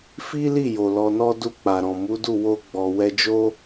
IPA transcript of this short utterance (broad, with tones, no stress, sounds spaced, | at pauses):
f i˦ l i˦˨ j o˨ l ɔ˧ n ɔ˦ d u˦˨ k͡p a˨ ɾ ɔ̃˨ m u˨˦ d u˦˨ w o˧ ɡ͡b ɔ˨ w ɛ˧ d͡ʒ o˦